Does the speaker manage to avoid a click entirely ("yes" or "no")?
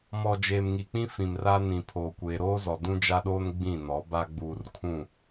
yes